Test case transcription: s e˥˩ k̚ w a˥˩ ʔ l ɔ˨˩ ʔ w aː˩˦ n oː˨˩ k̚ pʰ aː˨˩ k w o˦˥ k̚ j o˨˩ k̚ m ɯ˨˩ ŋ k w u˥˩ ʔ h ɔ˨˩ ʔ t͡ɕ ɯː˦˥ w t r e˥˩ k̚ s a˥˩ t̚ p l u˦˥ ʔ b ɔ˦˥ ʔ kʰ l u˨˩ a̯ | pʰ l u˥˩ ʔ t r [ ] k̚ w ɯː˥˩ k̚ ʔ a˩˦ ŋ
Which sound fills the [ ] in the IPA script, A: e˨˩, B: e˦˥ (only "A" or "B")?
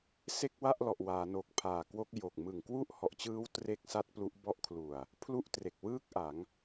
A